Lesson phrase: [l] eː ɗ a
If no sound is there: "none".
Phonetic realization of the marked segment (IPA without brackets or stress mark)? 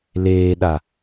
l